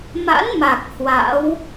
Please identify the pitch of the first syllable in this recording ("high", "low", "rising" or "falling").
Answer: rising